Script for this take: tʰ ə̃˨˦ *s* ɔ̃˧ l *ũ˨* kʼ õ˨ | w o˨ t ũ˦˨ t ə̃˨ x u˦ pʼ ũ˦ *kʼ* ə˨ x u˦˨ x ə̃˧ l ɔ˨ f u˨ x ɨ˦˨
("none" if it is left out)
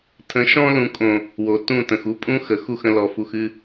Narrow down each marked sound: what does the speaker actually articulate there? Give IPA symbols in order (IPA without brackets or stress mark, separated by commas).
ʃ, ũ˨, x